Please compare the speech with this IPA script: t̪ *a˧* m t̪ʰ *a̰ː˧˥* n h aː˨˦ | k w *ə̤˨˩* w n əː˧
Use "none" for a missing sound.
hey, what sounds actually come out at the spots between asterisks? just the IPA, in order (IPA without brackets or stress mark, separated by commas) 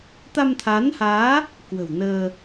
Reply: a˧, aː˨˦, ə̤˨˩